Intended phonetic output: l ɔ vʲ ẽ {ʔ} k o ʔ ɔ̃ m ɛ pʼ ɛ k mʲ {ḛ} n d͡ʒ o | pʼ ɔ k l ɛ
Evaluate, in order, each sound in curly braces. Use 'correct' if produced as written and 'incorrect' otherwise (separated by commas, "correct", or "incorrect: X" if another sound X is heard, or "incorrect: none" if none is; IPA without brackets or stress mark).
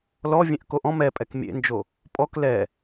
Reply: correct, correct